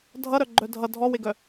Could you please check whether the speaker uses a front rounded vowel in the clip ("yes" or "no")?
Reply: yes